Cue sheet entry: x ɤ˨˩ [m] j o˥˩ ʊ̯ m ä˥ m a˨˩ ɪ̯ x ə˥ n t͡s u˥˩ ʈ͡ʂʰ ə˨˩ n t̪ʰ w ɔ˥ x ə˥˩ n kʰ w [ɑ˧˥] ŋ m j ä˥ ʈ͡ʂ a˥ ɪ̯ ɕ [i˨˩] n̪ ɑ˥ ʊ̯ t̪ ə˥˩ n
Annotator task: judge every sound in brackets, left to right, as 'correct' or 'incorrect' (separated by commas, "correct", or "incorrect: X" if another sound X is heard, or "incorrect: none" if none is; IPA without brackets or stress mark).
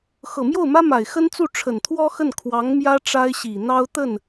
correct, correct, correct